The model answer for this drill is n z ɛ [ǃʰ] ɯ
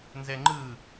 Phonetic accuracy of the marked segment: incorrect: ŋ͡ǃ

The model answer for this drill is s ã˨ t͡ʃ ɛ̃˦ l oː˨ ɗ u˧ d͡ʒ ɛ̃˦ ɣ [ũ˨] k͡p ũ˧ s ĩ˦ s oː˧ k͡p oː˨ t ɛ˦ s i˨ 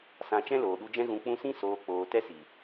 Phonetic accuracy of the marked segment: correct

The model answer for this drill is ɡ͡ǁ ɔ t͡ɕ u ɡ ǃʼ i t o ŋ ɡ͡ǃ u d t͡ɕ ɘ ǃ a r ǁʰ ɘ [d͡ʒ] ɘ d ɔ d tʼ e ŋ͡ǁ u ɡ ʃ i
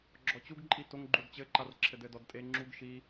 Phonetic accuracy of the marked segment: incorrect: d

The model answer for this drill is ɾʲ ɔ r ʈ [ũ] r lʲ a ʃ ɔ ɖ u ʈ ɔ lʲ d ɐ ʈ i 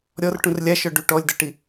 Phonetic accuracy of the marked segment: correct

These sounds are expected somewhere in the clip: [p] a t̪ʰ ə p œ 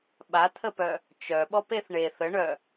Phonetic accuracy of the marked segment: incorrect: ɓ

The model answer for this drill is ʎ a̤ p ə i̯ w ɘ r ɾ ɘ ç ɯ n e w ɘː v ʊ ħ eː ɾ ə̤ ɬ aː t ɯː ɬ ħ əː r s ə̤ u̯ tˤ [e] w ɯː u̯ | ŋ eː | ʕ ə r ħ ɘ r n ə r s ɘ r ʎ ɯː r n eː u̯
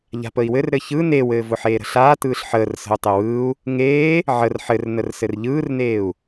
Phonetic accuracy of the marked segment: correct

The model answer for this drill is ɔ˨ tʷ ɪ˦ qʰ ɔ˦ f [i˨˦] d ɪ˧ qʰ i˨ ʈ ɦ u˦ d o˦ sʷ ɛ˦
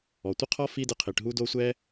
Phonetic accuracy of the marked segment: incorrect: i˦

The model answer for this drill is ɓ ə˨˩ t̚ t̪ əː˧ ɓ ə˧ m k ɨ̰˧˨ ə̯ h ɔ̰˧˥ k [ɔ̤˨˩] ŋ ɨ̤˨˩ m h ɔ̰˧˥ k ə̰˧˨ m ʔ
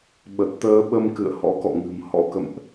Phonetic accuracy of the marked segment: incorrect: ɔ̰˧˨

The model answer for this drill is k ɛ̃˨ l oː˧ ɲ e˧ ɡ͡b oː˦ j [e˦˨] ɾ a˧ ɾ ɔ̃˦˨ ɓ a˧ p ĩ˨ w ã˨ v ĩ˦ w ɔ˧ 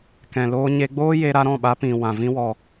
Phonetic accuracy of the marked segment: incorrect: e˧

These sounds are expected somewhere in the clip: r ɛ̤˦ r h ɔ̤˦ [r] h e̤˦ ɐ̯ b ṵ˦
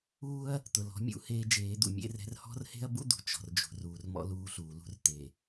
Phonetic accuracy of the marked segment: correct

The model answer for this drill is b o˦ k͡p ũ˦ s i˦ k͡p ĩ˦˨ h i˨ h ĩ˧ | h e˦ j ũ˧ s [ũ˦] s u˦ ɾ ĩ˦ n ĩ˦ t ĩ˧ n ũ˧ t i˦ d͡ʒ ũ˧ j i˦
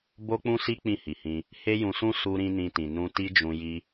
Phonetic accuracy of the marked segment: correct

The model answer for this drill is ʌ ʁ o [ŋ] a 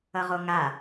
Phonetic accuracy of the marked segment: correct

